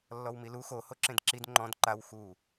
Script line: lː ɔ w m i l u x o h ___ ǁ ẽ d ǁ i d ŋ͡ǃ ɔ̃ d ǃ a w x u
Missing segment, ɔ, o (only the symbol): o